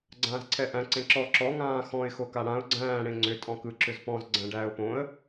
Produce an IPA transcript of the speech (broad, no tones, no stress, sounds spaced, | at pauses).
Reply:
ɡ͡ǀ ãː z ǀʰ ɛ ʔ æ̃ ǀ ẽ ǁ ɔ ǁ ɔ ŋ ãː x ɔ̃ ɪ̯ x o k a ɽ ã ʊ̯ ɡ͡ǀ æ̃ː ɽ ẽ ŋ͡ǀ ʏ tʼ ɔ̃ k ɯ ǁ ʏ z p ɔ̃ z ɡ͡ǀ æ̃ ɖ æː ʊ̯ p õ ə̯